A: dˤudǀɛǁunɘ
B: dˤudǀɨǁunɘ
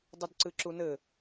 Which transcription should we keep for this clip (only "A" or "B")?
B